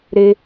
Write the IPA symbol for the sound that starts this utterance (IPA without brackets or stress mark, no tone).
ɾ